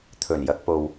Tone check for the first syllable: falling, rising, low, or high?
low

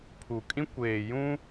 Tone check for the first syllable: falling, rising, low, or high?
low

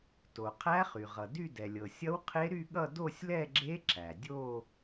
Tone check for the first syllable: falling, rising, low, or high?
low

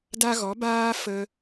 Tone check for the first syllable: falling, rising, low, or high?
high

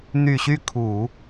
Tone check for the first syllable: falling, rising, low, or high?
low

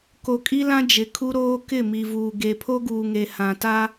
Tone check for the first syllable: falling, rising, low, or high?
low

